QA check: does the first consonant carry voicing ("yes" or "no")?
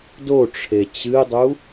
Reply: yes